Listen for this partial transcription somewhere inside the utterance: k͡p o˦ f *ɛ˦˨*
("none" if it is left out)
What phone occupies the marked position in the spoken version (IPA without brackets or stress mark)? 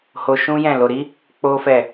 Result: ɛ˦˨